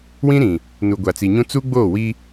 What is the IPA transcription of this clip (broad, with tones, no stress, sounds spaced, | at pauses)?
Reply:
w ĩ˦ ɾ ĩ˨ | n u˨ ɡʷ a˨ t͡s i˨ ɲ ũ˦ t͡s u˦ ɡ͡b oː˦˨ w i˦